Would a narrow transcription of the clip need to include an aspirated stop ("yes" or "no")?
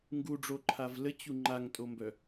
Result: yes